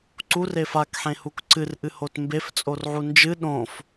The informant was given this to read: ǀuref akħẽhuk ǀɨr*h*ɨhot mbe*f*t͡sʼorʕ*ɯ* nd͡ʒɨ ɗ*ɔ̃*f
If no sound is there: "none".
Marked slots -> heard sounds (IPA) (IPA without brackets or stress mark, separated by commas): ʔ, f, u, õ